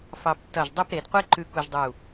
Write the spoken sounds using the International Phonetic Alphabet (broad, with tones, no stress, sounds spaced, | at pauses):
f ɑ˧ b tː ʌ˧˩ ʒ dˤ u˥˧ p ɾ e˩˧ d qʷ e˥ ǃ ʉ˧ k u˧ ʒ dˤ u˧˩